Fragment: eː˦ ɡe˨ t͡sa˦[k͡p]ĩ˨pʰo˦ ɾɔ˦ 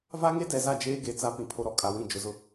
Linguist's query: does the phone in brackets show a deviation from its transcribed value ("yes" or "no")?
yes